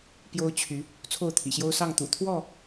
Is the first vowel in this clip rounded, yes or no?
yes